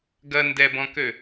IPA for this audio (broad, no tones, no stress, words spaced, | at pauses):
ɡɐ ndɛbɔ̃kø